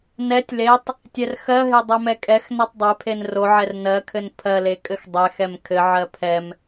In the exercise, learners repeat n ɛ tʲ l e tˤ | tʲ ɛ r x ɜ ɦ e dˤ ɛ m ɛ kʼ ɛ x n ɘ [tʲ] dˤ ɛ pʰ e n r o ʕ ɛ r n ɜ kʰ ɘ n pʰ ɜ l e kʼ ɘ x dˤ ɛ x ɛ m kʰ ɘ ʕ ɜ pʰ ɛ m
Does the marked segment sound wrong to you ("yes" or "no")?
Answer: yes